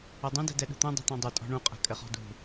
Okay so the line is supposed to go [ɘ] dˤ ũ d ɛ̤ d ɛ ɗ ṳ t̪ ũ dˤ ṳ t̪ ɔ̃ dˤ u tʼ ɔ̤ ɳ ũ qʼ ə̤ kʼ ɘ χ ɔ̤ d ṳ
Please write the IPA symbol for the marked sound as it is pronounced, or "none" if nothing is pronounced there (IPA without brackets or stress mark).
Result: ɘ